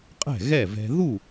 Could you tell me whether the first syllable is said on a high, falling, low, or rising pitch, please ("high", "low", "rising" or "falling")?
falling